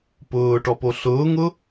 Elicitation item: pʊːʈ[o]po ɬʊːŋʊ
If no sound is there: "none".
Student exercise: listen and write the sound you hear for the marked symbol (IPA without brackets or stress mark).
ɔ